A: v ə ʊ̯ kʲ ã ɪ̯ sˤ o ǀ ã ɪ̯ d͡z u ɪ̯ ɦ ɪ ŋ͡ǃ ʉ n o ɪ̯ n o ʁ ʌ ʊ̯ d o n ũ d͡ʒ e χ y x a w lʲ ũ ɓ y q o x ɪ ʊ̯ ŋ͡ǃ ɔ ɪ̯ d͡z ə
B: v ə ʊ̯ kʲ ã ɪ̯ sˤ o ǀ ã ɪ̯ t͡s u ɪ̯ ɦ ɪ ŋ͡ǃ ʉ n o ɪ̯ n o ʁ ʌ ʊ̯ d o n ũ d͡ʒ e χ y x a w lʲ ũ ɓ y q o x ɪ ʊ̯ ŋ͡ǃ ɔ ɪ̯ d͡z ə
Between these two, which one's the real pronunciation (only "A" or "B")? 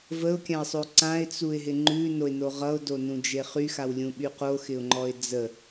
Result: B